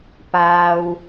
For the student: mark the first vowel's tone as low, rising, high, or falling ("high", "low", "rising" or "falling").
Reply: low